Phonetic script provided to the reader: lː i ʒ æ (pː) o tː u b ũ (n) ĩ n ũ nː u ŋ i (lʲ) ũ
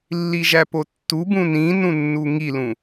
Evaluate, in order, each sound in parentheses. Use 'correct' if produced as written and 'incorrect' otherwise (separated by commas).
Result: incorrect, correct, incorrect